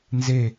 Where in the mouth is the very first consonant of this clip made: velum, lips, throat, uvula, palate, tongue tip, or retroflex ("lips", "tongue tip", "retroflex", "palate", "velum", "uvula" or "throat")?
tongue tip